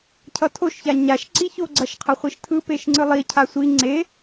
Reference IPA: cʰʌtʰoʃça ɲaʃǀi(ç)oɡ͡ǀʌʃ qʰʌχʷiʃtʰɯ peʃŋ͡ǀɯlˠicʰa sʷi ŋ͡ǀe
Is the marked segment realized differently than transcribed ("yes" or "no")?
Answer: no